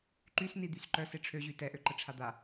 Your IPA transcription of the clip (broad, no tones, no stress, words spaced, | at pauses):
ǃysnid̪ys ǃœs eʈ͡ʂʰøʑy tɛʔø ǃəʈ͡ʂʰad̪a